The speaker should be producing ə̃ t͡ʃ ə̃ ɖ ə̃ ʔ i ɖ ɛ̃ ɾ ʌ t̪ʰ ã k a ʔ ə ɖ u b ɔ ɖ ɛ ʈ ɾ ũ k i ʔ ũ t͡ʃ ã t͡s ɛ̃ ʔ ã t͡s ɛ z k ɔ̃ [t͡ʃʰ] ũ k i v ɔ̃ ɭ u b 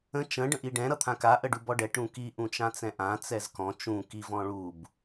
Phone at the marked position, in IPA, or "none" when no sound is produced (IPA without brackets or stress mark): t͡ʃ